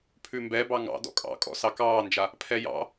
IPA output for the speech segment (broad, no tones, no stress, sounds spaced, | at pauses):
pʰ ʉ m b ɛ b ɑ ŋ ɑ̰ d ɔ̰ kʼ ɑ̰ kʼ ɔ̰ s ɑ k ɑː n d͡ʒ a | pʰ ɛ j ɑ̰